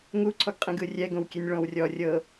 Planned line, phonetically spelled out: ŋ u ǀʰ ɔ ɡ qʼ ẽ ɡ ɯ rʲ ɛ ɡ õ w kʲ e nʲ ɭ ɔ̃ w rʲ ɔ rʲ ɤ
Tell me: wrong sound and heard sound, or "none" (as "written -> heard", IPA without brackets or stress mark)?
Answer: none